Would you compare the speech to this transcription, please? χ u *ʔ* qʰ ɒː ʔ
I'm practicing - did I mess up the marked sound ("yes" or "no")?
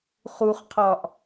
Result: yes